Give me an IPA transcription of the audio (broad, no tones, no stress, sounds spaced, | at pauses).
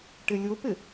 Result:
ʈ ɪ lʲ ʊ p ɪ